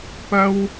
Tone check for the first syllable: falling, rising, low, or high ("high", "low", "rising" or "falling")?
high